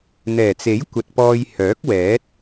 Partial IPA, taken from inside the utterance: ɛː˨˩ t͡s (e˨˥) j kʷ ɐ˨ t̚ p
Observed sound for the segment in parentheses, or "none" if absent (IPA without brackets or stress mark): e˨˥